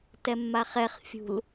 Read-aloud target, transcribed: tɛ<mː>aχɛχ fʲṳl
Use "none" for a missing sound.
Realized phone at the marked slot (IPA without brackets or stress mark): mː